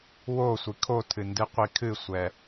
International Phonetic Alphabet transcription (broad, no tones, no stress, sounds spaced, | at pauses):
w o sʷ i kʰ o tʰ ɨ n d ɨ qʷ i kʰ ɨ sʷ ɛ